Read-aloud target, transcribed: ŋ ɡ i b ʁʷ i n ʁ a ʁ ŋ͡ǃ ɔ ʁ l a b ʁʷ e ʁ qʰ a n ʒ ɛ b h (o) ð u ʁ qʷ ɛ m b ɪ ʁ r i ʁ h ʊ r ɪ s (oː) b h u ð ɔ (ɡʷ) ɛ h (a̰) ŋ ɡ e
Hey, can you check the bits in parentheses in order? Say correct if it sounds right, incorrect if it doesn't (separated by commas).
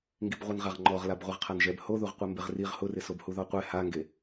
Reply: correct, incorrect, incorrect, incorrect